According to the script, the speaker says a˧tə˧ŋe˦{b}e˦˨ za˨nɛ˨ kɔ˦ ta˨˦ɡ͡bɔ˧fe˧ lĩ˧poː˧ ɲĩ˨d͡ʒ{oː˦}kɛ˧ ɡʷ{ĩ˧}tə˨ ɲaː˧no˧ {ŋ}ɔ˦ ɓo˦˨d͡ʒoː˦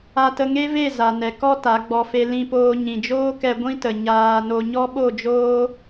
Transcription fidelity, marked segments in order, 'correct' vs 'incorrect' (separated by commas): incorrect, correct, incorrect, incorrect